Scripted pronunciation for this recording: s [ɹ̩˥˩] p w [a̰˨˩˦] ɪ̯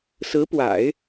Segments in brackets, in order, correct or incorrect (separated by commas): incorrect, correct